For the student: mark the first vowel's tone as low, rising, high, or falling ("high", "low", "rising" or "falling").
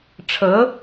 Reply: rising